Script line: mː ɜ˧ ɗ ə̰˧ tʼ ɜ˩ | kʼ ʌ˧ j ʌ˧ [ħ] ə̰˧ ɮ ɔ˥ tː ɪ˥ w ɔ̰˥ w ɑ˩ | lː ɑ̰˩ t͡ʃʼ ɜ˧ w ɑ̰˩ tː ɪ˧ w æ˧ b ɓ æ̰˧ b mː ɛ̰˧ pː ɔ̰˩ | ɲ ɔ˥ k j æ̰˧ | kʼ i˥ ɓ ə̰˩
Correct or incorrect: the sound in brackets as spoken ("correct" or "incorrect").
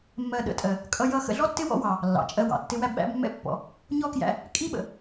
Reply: incorrect